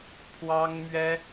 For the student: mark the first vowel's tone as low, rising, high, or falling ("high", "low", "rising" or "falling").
high